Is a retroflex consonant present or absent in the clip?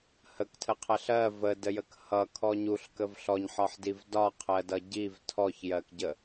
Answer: absent